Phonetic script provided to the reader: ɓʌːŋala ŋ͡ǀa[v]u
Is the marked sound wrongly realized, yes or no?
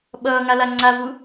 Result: no